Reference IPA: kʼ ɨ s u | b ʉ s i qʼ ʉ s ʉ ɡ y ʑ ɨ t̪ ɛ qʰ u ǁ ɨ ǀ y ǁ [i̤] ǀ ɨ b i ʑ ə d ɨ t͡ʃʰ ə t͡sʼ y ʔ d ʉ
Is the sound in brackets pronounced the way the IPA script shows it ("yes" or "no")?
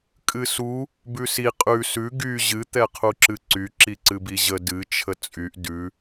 no